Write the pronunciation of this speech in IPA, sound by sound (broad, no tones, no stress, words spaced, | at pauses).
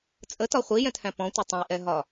t͡sʼətɒ χʷijɛ̃thæ̃ pɔ̃tʷə tˤə̃jʔɛɦɒ